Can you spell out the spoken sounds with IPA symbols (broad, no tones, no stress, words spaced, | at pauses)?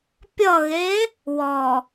pʲʌɣe | wɔ